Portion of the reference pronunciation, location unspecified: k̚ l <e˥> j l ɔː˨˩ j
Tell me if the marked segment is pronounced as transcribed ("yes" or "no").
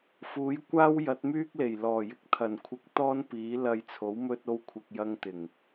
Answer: no